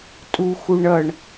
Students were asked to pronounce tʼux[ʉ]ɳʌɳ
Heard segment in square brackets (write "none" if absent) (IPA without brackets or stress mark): u